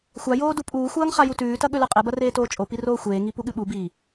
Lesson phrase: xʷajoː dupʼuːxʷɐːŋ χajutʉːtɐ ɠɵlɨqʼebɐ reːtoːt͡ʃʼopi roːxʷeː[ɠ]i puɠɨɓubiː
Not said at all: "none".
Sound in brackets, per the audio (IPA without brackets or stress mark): ŋ